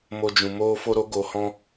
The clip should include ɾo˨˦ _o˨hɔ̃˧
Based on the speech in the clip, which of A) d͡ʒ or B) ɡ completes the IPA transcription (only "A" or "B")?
B